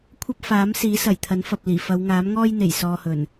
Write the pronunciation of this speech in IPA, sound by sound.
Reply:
kʷʰ ɐ˥ p̚ f aː˨˥ m s iː˨˥ s ɐ˨˩ j t̪ʰ ɐ˨˥ n f ɐ˨ p̚ l iː˨˩ f ɐ˨˧ w ŋ aː˨˥ m ŋ ɔː˥ j n̪ e˨˩ j s ɔː˨ h ɵ˨˩ n

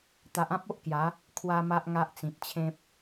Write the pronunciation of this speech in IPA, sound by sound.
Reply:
t̪ a˨ ʔ ã˦ p̚ o˦ ʔ k j a˨˦ | kʰ w a˦ m a˦ ʔ ŋ a˦ ʔ t͡s ĩ˨ t̚ t͡ɕʰ ẽ˦ p̚

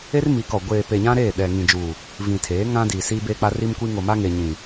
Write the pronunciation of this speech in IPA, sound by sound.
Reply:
e˦ r m i˨˦ k ɔ˨ ɡʷ eː˨ p e˨ ɲ ã˦ ɾ eː˦˨ ɗ ɛ˨ ŋ ĩ˨ d͡ʒ uː˨ | v ĩ˨ tʰ eː˨˦ ŋ ã˦ d iː˨ s iː˦ b eː˦ k͡p a˦ r i˦ m kʷ iː˦ ŋ o˨ m a˦ ŋ e˨ ɲ ĩ˨

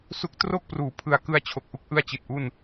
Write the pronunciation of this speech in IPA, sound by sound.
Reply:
s u˦˥ k̚ t r o˥˩ k̚ p r uː˩˦ pʰ ɯ˨˩ a̯ k ɯ˧ a̯ t͡ɕʰ o˨˩ k̚ ʔ u˦˥ k̚ ʔ ɯ˥˩ a̯ t͡ɕ i˨˩ t̚ ʔ u˥˩ n

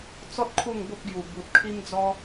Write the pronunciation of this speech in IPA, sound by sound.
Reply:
t͡s ɔ˦ t̚ kʰ u˥˧ ŋ b o˦ p̚ ɡ j u˨˩ b u˨ t̚ kʰ i˦ m d͡z ɔ˦

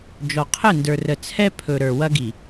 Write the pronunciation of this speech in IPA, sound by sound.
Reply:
d͡ʒ ɔ˨ qʰ ə˦˨ n d ə˞˨ r ə˨ t͡sʰ ɛ˦ pʰ ɵ˨ ɾ ə˞˨ w ɐ˦ ɡ i˨

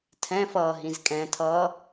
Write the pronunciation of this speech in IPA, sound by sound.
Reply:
tʰ ɛ̃ f ʌː ɦ ĩ z kʼ ɛ̃ tʰ ʌː

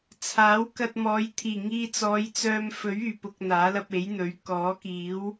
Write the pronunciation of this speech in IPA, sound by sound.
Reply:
t͡sʰ aː˨˥ w k ɐ˧ t̚ m ɔː˨˧ j t̪ʰ iː˨˩ ŋ iː˧ t͡s ɔː˨˧ j t͡s œː˧ m f ɵ˨˥ ɥ yː˨˩ p ʊ˨ k̚ n̪ aː˨˥ l ɐ˧ p̚ e˨˥ j n̪ ɵ˨˥ ɥ k ɔː˨˥ k iː˨˥ w

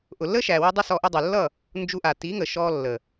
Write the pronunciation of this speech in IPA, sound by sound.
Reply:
ʔ ʊ˨ lː ə˦ ʃ æ˨ w ə˦ dˤ ə˦ s ɔ˧ ʔ ʊ˧ dˤ ʊ˨ lː ʌ˦˨ | n d͡ʒ u˧ ʔ a˨ t i˨˦ ŋ ə˨ ʃ ɔ˧ lː ə˨

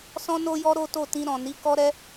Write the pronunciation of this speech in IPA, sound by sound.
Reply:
s ɔ̃˧ n o˧ j ɔ˧ ɾ o˦ t o˦˨ t ĩ˧ ɾ ɔ̃˨ n i˨˦ k ɔ˦ ɾ ɛ˦

